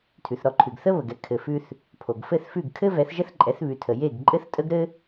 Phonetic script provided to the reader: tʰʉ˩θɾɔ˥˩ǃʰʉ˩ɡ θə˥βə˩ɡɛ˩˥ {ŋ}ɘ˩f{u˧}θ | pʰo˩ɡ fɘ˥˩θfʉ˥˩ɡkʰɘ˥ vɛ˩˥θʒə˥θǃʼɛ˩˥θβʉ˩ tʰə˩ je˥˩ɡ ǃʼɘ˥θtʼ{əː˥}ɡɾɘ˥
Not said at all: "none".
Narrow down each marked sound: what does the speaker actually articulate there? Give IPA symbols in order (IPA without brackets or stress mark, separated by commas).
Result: kʰ, ʉ˧, ə˥